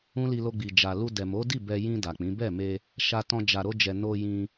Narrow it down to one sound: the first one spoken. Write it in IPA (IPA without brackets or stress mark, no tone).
ũ